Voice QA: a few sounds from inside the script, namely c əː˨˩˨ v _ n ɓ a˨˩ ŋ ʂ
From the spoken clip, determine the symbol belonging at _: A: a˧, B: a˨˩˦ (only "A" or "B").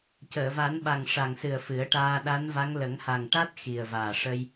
B